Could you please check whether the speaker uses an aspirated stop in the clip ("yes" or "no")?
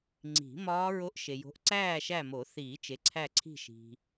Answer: yes